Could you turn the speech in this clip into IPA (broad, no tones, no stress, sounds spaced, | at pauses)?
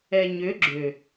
ɛ ɲ ʏ ɡ͡ǁ ʏ